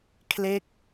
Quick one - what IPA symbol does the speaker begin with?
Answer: kʰ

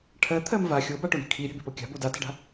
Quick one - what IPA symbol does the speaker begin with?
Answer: ʈʰ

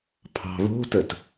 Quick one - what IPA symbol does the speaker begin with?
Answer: pʰ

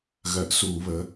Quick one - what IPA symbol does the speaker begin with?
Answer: ɣ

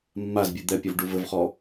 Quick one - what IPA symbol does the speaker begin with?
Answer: mː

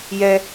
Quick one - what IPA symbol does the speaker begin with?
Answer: j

